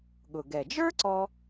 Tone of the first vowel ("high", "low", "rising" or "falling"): low